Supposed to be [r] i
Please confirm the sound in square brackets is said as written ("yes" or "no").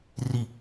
yes